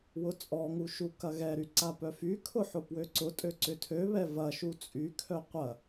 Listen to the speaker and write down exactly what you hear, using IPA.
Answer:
w ʊ t͡sʼ ɔ ŋ u ʃ u k ɐ ɣ ɛ ɾ y ǀ a p œ f y kʰ ʊ ħ ʊ p w ø ǀ ʊ tʼ ø ǀ ʏ tʰ ø β ɛ v ɐ ʃ u t͡sʼ y kʰ œ qʷ ɐ

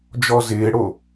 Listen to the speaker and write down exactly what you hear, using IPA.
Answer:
d͡ʒ ɔ z ɪː ɽ o

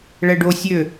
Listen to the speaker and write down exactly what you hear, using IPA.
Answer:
ɭ ɛ ɖ o sʲ ø

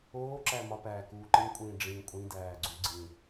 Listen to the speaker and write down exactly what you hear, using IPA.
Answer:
oː ǁ æ m ɒ p æː k uː ǃ ĩ kʷʼ ĩː ɖ͡ʐ ĩ kʷʼ ĩ d æː ɡ͡ǀ u ɡ͡ǀ ĩ

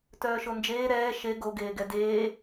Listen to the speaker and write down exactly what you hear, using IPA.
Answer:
t œː ʃ o n d͡ʒ eː ɾ ɛː ʃ e ɡ o ɡ eː ɡ ɛ d eː

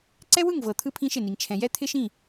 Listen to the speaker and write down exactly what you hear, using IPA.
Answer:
ǀ ɛ˦ w ɯ˦˨ ŋ v ɤ˨ t̪ʰ ɯ˦ pʰ ĩ˦ ʃ ɪ˦˨ n i˨ ŋ t͡ʃʰ ɛ̃˨ j ɛ˦ t̪ʰ ɪ˦ ʃ ĩ˦˨

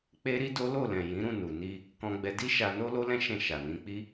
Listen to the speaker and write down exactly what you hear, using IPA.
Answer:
k͡p e˦ ɾ i˦ d o˦ l o˦˨ l ɛ̃˨ j ĩ˨˦ ɾ ũ˦˨ n u˨ n i˧ | k ɔ̃˧ ɡ͡b ɛ˧ d i˦ ʃ a˧ n o˦ l o˦ l ɛ̃˦ ʃ ɛ̃˦˨ ʃ a˨ n ĩ˨˦ k͡p i˦

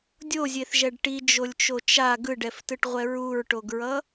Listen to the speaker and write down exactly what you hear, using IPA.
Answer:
dʲ o zʲ e θ ʒ ɛ ɖ ʈ i d͡ʒ o lʲ t͡ʃ o t͡ʃ a ɡ ɯ ɖ ɛ f t ɯ ʈ ʁʷ ɛ ɹ u ɹ ʈ o ɡ ɹ ʌ

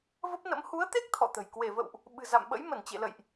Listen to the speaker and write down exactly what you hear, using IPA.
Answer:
v ə˦˥ p̚ n ə̰˧˥ m h u˨˦ ə̯ t̪ e˦˥ k̚ t̪ʰ ɔ̰˧˨ t̪ ə̤˨˩ j k w e˧˩ v ə̰˧˨ w ʔ | ɓ ɨ̤˨˩ z a̰˧˨ m ɓ ə̰˧˥ j m ə˧˩ n t͡ɕ ḛ˧˨ l ə̰˧˨ j ʔ

